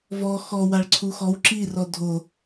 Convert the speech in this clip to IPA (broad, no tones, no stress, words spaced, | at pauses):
vɔ xɔwaɭ ǀʰuxɔw ǁi rɔdʱo